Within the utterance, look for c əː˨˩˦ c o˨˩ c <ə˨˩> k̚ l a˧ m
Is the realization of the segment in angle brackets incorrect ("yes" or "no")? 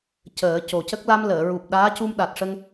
yes